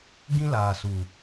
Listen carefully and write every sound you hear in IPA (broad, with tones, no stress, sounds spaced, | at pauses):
ɡ ĩ˦ l aː˨ s u˨